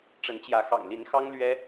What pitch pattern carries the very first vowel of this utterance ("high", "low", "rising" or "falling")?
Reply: rising